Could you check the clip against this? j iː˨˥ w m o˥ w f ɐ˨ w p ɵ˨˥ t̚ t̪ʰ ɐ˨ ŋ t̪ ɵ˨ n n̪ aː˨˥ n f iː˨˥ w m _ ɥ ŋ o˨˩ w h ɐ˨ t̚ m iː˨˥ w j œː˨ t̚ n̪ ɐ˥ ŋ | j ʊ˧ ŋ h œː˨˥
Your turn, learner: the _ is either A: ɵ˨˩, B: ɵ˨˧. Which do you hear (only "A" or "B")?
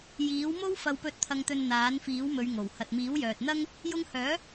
B